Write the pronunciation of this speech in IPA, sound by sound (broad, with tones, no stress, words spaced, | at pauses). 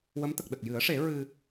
wə˧˥mt̪ə˨˩k̚ɗə˨˩k̚ jɨ˨˩˦ə̯ʂe˨˩˦ ɹɨ˧